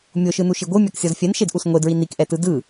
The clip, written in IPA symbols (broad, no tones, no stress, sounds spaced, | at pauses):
mʲ o ʃ ɯ n u ʃ i ɡʷ ɯ mʲ a k sʲ ɔ z fʲ ɛ n ʃ e d ʔ u s ŋʷ e d ɹ i n i k ʔ ɛ t ɯ d ɯ